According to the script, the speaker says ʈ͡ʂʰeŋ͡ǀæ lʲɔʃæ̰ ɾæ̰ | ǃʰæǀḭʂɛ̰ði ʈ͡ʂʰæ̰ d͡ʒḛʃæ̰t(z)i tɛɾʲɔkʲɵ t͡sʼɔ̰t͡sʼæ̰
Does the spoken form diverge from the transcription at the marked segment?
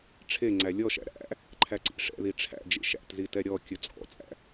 no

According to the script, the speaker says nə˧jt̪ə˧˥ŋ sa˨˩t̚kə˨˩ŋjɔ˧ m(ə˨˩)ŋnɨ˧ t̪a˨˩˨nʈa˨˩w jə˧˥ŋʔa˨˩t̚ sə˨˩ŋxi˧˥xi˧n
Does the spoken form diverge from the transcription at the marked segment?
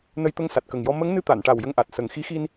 yes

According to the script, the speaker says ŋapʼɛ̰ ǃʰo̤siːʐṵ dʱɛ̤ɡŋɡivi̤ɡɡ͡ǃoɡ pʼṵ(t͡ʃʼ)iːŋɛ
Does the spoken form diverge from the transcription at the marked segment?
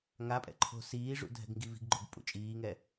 no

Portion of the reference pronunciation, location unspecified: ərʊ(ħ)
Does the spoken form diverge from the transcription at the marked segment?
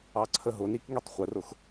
yes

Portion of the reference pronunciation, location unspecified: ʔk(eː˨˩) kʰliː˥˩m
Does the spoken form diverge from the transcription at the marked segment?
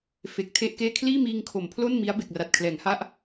yes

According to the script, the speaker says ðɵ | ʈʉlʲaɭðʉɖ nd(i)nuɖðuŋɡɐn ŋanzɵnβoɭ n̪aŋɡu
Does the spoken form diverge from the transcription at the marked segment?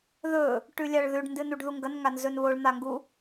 yes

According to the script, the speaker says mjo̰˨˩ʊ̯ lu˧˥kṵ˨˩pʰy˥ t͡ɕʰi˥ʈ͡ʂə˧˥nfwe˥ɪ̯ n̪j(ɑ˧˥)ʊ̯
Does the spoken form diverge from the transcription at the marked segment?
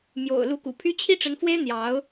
no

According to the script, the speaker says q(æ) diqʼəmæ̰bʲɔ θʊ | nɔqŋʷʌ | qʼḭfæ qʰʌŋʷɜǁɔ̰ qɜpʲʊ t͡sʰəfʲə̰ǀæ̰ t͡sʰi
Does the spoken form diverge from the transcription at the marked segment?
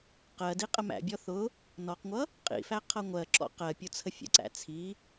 yes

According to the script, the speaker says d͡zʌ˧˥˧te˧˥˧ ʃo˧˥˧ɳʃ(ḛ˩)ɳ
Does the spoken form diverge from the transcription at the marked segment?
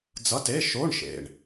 no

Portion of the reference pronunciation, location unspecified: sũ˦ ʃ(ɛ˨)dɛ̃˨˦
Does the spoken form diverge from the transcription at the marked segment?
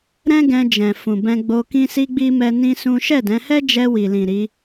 yes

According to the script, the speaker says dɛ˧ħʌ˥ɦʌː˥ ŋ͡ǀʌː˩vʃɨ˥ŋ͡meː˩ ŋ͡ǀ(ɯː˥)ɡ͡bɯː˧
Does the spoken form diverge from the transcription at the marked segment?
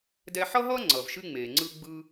yes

